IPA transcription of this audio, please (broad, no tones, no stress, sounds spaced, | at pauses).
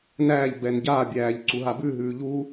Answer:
n æː ʎ b ɛ n ɟ a bʲ æː ʎ ǀ u ɦ a b ʉ ɦ ʉː ʎ u